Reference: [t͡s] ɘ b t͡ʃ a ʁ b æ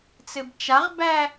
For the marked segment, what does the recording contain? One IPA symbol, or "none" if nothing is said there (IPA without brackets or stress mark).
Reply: t͡s